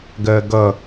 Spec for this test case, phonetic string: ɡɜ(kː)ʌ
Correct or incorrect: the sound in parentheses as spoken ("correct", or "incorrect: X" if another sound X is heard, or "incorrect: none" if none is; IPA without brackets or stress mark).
incorrect: ɡ